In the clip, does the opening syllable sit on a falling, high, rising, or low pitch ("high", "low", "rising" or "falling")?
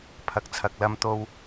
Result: low